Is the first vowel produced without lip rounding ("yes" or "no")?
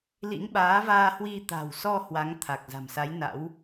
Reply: yes